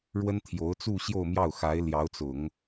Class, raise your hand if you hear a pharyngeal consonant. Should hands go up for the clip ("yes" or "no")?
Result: no